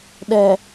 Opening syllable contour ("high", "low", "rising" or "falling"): low